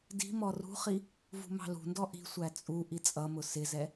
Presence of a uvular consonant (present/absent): present